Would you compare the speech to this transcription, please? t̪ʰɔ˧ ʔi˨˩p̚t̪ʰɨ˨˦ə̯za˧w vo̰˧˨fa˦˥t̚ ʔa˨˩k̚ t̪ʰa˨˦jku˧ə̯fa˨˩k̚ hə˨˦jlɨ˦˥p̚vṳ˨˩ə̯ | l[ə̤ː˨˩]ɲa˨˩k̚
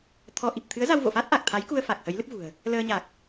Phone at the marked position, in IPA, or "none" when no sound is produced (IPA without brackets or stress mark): əː˧